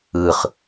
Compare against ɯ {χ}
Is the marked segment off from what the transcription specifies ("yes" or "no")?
no